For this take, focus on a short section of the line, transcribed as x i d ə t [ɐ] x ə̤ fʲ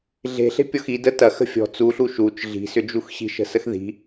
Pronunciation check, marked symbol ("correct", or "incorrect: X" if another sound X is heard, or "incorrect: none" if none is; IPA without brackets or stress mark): correct